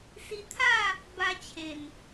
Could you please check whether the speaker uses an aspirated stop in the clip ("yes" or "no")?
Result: yes